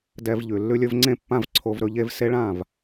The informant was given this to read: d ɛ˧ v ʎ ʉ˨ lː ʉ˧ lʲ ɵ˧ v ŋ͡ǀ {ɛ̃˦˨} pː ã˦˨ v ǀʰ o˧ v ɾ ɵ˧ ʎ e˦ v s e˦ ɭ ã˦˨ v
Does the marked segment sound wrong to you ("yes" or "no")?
yes